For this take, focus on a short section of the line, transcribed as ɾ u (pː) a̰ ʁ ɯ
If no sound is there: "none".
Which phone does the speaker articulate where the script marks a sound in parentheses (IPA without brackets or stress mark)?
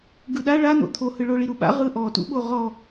ɓ